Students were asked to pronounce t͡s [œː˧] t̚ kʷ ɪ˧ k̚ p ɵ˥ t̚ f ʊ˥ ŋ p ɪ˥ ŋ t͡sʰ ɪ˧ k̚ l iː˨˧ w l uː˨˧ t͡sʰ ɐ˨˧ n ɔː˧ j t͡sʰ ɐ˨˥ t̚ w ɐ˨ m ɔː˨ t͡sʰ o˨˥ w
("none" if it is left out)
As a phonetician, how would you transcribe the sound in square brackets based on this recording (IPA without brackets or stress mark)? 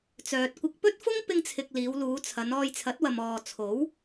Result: œː˨